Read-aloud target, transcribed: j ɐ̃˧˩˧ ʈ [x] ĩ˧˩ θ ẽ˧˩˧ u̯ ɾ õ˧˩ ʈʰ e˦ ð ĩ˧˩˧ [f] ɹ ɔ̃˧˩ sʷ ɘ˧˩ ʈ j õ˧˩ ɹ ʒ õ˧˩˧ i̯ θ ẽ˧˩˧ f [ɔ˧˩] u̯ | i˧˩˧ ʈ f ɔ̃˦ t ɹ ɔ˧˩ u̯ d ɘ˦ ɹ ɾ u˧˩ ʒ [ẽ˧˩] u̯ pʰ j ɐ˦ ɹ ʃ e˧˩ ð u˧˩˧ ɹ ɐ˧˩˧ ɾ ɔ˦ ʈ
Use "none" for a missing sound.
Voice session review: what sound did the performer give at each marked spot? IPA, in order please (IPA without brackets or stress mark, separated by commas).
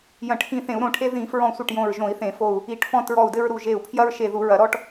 x, f, o˧˩, e˧˩